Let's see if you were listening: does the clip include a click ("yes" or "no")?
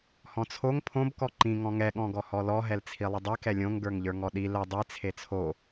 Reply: yes